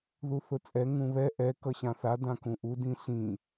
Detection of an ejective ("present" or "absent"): present